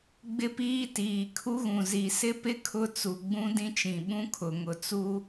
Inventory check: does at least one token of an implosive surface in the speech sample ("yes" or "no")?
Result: yes